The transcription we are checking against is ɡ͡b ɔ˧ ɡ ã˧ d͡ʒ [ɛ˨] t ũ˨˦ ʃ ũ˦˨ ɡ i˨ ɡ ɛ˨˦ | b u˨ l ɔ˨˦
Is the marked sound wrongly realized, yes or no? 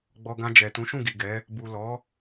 no